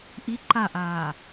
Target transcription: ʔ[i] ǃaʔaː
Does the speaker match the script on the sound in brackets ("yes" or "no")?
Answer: yes